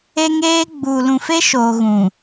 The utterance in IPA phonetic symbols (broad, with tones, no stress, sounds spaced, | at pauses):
e˦ ŋ eː˦ ɡ͡b uː˨ l ũ˨ f e˦ ʃ oː˨ ɣ ũ˨